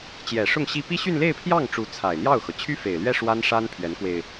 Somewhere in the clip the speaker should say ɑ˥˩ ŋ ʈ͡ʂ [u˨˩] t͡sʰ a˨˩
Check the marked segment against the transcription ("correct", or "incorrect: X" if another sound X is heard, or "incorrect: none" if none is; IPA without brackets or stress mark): incorrect: u˧˥